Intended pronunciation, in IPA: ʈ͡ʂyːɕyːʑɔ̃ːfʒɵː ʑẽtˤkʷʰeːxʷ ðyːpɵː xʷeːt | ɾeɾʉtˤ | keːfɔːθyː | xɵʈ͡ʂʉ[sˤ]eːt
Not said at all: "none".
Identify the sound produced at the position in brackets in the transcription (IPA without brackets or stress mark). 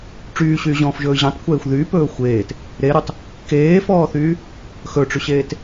ɕ